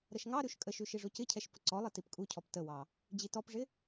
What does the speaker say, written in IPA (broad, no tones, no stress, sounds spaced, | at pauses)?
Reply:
ɾ ə ʃ ŋ ɑ ɾ ʉ ʃ kʼ ə ʃ ʉ ʃ i ʐ o c ɪ cʰ ɛ ʃ p ə ǀ ɔ lˠ i t i p kʼ u cʰ ɔ p t ə w ɑ | d͡ʑ i t ɔ p ʐ ɪ